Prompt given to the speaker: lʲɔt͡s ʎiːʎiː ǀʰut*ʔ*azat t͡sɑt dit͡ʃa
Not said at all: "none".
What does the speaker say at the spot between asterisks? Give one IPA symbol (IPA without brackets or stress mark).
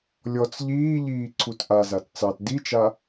ʔ